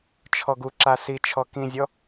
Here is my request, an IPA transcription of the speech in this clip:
t͡ʃʰ ɔ ɡ u ǁ a s i t͡ʃʰ ɔ k ĩ zʲ ɔ

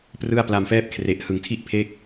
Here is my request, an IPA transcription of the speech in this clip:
p r ɯ˥˩ a̯ p l a˧ m f ɛː˥˩ p̚ kʰ r e˨˩ ʔ h ɯ˨˩ ŋ tʰ i˥˩ ʔ pʰ e˦˥ k̚

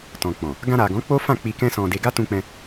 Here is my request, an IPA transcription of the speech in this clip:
t ɔ̃˨ k͡p ɔ̃˨ | ɡ ã˧ ɾ a˨ ɡ ɔ̃˨˦ k͡p o˦ f ã˦˨ k͡p i˧ k ɛ̃˦ s ɔ̃˧ d e˧ ɡ a˦ t ũ˧ k͡p ɛ̃˧

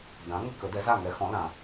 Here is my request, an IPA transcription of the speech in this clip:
d ã˩˥ ŋ ə˥˩ k ə˨˩˦ d ɛ˩˥ z a˥˩ ŋ ɛ˩˥ x ɔ̃˩˥ l ã˨˩˦

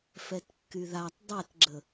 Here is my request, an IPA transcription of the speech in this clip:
f ɛ t kː y ð a tˤ dˤ ɛ t ɡ͡ǁ ə

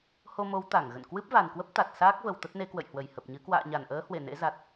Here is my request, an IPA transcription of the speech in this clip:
h o˧ m o˨˦ w t̪ a˧˩ ŋ ɣ ə̰˧˨ n k w ɨ˦˥ p̚ v a˨˩ n k w ə˦˥ p̚ t̪ a˨˩ t̚ s aː˦˥ k̚ v ə˨˩ w t̪ ə˦˥ t̚ n e˨˦ k w ə̰˧˨ j h w ə˧˩ j h ə˨˩ p̚ ɲ ɨ˨˦ k w a̰ː˧˨ ɲ a˧˩ n ʔ əː˨˦ h w e˧˩ n ḛ˧˥ z a˨˩ t̚

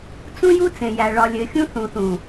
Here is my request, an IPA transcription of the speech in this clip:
t͡s ũ˦ j u˦ t͡s ẽ˨ j æ˨ ɭ ɒ˨ lʲ ɘ˨ xʲ ũ˦ θ ũ˨ θ ũ˨

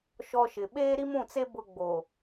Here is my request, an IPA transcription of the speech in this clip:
ʃ ɔ˦ ʃ ɪ˨ ɓ eː˦ ɾ i˦ m ũ˦˨ t͡s e˦ b ʊ˦ ɡ͡b o˨

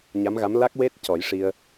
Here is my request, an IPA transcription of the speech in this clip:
ɲ a˧˥ m ɣ a˧˥ m l a˦˥ k̚ w e˦˥ t̚ c ɔ˨˩˦ j ʂ i˧ ə̯

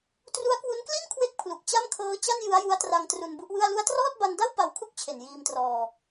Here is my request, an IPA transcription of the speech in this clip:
t r u˦˥ a̯ k w u˦˥ n k l i˥˩ n kʰ w e˥˩ k̚ pʰ l u˨˩ k̚ t͡ɕ a˥˩ m kʰ ɤː˦˥ t͡ɕ a˥˩ n j ɯ˦˥ a̯ j u˦˥ a̯ t r a˧ ŋ t r u˧ n b u˦˥ ʔ w ɯ˥˩ a̯ l u˦˥ a̯ t r ɔː˥˩ t̚ b a˧ n d a˥˩ w p a˧ w kʰ u˥˩ k̚ t͡ɕʰ e˨˩ n j iː˧ m t r ɔː˧

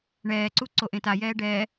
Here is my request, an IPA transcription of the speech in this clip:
ɳ ɛː ǀ u ǀ o ʔ ẽ t a j ɛː ɖ ɛː

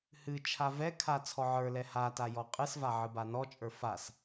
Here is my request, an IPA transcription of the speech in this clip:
h ɨ t͡ʃʰ a v ɛ kʰ a t͡sʰ ɔ ʕ ə˞ l ɛ h a t a j ɔ qʼ ɨ s v a ʕ ɨ b a n ɔ t͡ʃʼ ə˞ f a s

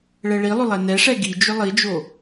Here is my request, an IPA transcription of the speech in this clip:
ɭ ɛ ɭ i lˠ ʏ lˠ ɛ n ɛ ʂ ɛ ɡ i d͡ʒ ʏ lˠ i d͡ʒ o

